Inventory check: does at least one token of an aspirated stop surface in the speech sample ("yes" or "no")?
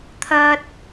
yes